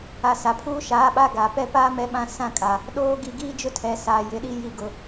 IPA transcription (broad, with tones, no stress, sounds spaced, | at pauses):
a˨˦ s a˨ pʰ uː˦ ʃ aː˨˦ ɓ a˦ ɡ a˨ p ɛ˦ p aː˦ m ɛ˦ ɓ ã˦ s ã˦˨ kʼ a˨ | ɗ oː˦ ɡ i˨ ɡ iː˦ d͡ʒ ʊ˦ tʰ ɛ˨ s aː˨ j ɪ˨ ɗ i˦ j i˨ ɡ ʊ˨